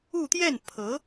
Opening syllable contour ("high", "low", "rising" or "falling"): falling